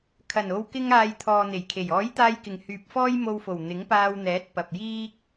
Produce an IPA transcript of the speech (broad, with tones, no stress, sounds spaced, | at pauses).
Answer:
kʰ ɐ˨˩ n o˨ w k ɪ˧ ŋ aː˨ j t̪ʰ ɔː˨ n̪ e˨˩ j kʰ e˨˩ j ɔː˨˥ j t̪ aː˧ j k ɪ˨˩ ŋ h yː˨ p̚ f ɔː˥ j m o˧ w f o˨˩ w n̪ ɪ˨˥ ŋ p aː˧ w n̪ ɛː˨˥ t̚ p ɐ˨ p̚ j iː˥ k̚